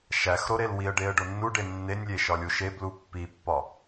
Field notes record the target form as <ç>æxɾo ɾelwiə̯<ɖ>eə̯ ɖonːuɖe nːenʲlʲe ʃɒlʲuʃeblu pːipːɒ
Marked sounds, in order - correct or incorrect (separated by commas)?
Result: incorrect, correct